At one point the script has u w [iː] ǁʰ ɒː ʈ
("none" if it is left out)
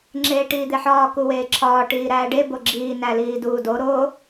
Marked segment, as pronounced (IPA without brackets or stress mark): eː